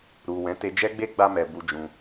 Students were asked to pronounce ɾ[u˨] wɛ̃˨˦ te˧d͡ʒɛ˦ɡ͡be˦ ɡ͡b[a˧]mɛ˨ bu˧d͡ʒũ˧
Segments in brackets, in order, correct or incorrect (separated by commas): correct, correct